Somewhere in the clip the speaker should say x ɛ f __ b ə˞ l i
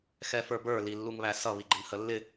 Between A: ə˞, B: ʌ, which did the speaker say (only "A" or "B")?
A